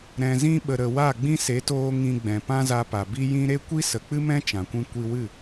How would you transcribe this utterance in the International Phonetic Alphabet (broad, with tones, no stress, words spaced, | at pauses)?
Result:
ɾɛ̃˨zĩ˧ɓə˨ɾə˨ wa˦˨ɡ͡bĩ˦se˨˦toː˧ ŋĩ˨ ɡ͡bɛ̃˨pã˦za˧pa˨ bi˦jĩ˦ ɾe˦kʷi˦ sə˨k͡pɨ˦ mɛ̃˦ t͡ʃã˨kʷĩ˦ kʷi˧wɨ˦˨